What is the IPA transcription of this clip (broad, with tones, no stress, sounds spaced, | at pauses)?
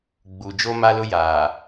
ɡ͡b u˨ d͡ʒ o˦ m a˦ l ʊ˦ j aː˨